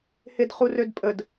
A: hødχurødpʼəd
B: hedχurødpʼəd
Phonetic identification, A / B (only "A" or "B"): B